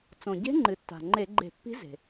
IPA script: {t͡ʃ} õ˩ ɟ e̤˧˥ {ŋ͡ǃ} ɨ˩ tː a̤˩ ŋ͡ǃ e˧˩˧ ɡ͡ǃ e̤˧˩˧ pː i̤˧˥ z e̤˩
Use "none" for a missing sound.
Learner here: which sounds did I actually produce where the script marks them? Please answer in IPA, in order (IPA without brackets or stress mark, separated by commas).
t͡s, ŋ͡ǃ